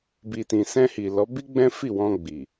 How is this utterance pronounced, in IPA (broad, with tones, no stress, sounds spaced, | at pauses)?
b i˨ t ĩ˨ s ɛ̃˧ h i˨ l ɔ˨˦ b i˦ ɡ͡b ɛ̃˦ f i˦˨ w ɔ̃˧ ɡ͡b i˨